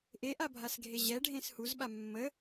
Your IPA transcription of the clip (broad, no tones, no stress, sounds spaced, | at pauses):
ʔ e ʔ a bʱ a s ɡʱ e ʑ ɛ ɖʱ ẽ s h u z ɓ a mː ə